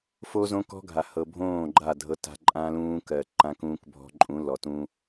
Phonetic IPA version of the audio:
f o˦ z õ˦ k ɔ̤˦ ɡʱ a˨ h ɤ˨ bʱ õː˦˨ ɡ͡ǃ a˦˨ dʱ ɤ˦ t a̤˦ ǃʼ ã˦ l ũː˦ k ɜ˨ ǃ ã˦ k ũː˦ k bʱ ɔ̤˦ ǃʼ ũ˨˦ l ɔ˨ t ũ˦

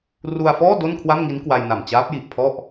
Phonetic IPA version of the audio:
r u˧ a̯ f ɔː˥˩ d o˥˩ n kʰ w a˥˩ m ŋ i˦˥ n k w a˧ j n a˨˩ m t͡ɕ aː˦˥ p̚ j i˨˩ ʔ pʰ ɔ˥˩ ʔ

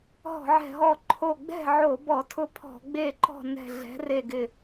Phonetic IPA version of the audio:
ɦ ɔ̤˧˩˧ ʕ ɛ̤˧˩ ɦ ɔ˧˩ ǃʰ o˧˩ ɡ͡b ɛ̤˥˨ ʕ o˧˩˧ b ɔ˧˩˧ tʰ ʊ˥˨ pʰ ɔ̤˧˩˧ ɡ͡b e˥˨ ǃ ɔ̤˥˨ n ɛ̤˧˩ ɮ ɛ̤˩˥ r e˧˩ ɡ ɪ˧˩

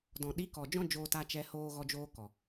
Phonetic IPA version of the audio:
d ɔ̃˨ ɗ i˨˦ k ɔ˨ d͡ʒ ɔ̃˦ d͡ʒ oː˧ t a˧ t͡ʃ ɛ˧ h oː˧ ɣ ɔ˧ d͡ʒ oː˧ k ɔ˨

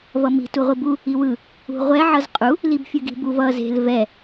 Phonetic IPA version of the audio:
v ʌ m i̤ t u ʁʷ i b u | i w ɯ | ṳ ʁʷ ɛ ʕ ʌ z qʼ u | l i b fʲ ɯ ɡ i̤ b u v ʌ z e̤ l v ɛ

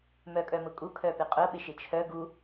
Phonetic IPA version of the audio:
m œ kʼ œ m ʊ kʼ u kʰ œ p ɪ qʼ ʊ ɓ ɪ ʃ ɪ t͡ʃʰ œ ɡ u

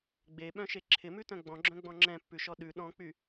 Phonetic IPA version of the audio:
ɡ͡b e ɓ œ̃ ʃ e ǁʰ ɪ m ʉ t œ̃ ɡ͡b ɔ̃ ɡ͡ǁ œ̃ ɡ͡b ɔ̃ ŋ͡ǁ ɛ̃ pː ʉ ʃ ɔ ɗ ʉ ɗ ɔ̃ k͡p y

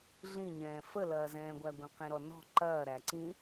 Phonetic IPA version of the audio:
ɮ ĩ ɲ ɛ̃ː f ə l ɐː z ɛ̃ː ɡʷ æ ɡʷ ĩ q ĩ ɾ ɔ n ɔ̤ ǃ ɐː ɾ æ ǀ ĩ

